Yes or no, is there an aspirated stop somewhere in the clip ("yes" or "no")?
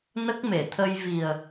yes